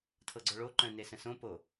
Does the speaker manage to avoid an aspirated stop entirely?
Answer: no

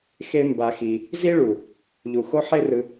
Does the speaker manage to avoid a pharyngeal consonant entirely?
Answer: no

